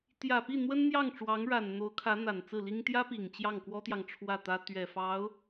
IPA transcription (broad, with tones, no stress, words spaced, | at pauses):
t̪jä˨˩pi˥˩ n̪wə˥nn̪jɑ˥˩ŋʈ͡ʂwɑ˧˥ŋɻa˨˩n n̪o˧˥ʊ̯kʰä˧˥ n̪a˨˩nt͡sɹ̩˥˩li˥ŋ t̪jä˥pi˨˩ŋ t͡ɕjɑ˥˩ŋkwɔ˥t̪jɑ˨ŋ ʈ͡ʂʰwä˥˩t̪ä˥ t̪ɥɛ˨˩fɑ˧˥ʊ̯